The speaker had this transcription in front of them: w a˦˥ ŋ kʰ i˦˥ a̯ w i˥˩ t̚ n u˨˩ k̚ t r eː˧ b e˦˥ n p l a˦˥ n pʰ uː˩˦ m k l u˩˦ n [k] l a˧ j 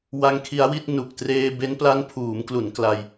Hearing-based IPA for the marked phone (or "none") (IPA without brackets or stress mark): k